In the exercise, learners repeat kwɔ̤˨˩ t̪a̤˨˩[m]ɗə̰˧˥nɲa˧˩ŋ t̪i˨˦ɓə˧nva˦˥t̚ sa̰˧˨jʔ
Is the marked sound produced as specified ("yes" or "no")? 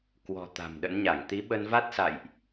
yes